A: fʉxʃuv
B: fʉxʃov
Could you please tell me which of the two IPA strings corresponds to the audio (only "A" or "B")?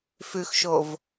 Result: B